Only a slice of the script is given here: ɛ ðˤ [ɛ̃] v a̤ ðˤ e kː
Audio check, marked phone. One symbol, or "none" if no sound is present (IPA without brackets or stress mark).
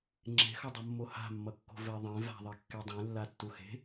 ẽ